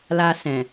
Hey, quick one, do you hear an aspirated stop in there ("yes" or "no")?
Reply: no